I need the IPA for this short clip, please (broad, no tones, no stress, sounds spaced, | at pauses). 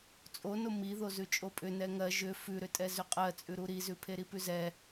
t͡sʼ o n o m i ð o z ʉ t͡ʃʼ o pʼ ʏ n ɛ ŋ ɜ ʒ ʏ f ʉ ɾ ʏ tʼ ɛ z ʏ qʼ ɜ t͡sʼ ʉ ɾ u ɾ i z ʉ pʰ e ɾ i p ʉ z ɛ